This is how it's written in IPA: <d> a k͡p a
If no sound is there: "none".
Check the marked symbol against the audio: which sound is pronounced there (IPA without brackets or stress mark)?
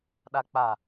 ɗ